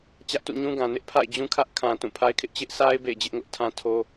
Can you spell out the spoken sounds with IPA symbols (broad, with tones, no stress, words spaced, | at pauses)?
t͡ɕä˦ʔtṵ˦˨ɲũ˦ɡã˨ nɪ˦ʔ pʰa̰˦˨ɪ̯ d͡ʑũ˦kʰä˦ʔ kʰã˨ tũ˦˨pʰa˦ɪ̯kʰɪ˦ʔ t͡ɕɪ˦ʔsʰa˦ɪ̯ bḛ˦˨ɪ̯d͡ʑɪ˦ʔŋʊ˦ʔ tʰã˦tʰo˦